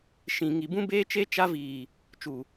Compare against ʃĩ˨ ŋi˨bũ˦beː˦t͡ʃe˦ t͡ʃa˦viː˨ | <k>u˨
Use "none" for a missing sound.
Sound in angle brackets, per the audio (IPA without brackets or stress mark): t͡ʃ